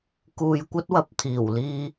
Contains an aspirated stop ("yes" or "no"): yes